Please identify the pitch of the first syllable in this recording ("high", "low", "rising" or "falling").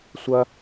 high